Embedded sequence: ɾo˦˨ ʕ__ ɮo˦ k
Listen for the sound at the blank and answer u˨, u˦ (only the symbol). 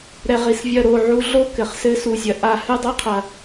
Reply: u˦